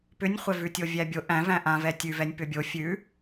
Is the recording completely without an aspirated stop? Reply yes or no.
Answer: yes